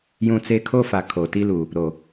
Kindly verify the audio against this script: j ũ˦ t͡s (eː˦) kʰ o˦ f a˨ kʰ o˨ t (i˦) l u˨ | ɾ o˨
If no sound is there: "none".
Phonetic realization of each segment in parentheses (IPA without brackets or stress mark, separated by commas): e˦, i˦